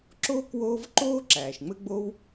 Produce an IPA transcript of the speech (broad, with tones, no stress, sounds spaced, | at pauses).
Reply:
ǁ oː˥ k w oː˦ v ǃ oː˥ ǁ æː˩ ʃ ŋ͡m ɘ˦ ɡ͡b o˦ w